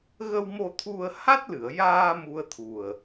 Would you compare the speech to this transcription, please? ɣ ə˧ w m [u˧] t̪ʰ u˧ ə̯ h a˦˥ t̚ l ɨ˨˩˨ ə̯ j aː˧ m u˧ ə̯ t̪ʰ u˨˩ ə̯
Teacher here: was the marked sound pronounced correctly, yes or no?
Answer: no